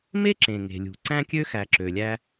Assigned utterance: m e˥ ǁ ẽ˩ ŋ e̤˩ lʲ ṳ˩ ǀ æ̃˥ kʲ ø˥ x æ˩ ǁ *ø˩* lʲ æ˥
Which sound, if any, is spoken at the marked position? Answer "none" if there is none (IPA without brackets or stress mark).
ø˩